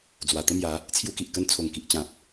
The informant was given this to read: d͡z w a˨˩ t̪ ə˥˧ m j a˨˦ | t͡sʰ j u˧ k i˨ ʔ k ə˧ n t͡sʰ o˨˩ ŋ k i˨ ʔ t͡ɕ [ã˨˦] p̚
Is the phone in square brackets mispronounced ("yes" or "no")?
yes